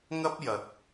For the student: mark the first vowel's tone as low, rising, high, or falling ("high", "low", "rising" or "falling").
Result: high